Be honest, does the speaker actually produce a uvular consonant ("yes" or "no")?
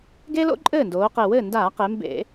yes